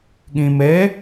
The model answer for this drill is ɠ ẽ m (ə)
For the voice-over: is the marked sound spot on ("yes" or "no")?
no